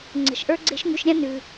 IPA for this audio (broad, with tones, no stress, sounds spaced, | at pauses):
ŋ͡ǀ ə̤˩ ʃ ʔ ə˞˥ ɡ͡ǀ e̤˥ ʃ ŋ ʉ˧ ʃ ɾʲ ã˥ n ʉ˩